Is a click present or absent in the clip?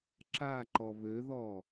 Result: present